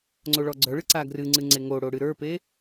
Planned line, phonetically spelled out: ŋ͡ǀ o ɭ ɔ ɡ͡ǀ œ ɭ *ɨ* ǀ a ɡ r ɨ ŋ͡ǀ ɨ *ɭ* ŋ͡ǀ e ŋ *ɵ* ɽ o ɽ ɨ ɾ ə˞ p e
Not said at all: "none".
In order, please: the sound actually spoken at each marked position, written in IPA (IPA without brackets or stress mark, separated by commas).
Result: ɨ, none, o